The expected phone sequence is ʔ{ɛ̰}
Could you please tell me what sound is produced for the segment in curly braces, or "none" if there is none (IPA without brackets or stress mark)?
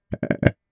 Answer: æ̰